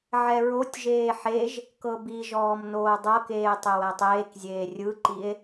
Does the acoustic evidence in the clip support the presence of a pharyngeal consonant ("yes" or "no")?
yes